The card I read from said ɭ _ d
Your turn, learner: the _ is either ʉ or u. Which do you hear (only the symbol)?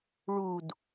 u